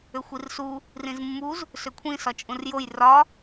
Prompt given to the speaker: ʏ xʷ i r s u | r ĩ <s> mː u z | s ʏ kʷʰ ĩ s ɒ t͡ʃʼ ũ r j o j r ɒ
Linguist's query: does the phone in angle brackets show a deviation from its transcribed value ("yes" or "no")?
yes